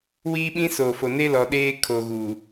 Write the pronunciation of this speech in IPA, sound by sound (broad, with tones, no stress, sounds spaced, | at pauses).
w iː˦ ɓ ĩ˦ s oː˨ f o˨ n e˦ l ɔ˨ ɗ eː˦ kʰ o˨ ɣ uː˨